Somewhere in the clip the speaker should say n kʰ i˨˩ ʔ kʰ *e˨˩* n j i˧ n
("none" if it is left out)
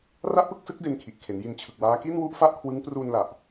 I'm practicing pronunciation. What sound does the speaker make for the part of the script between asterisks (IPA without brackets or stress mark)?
e˩˦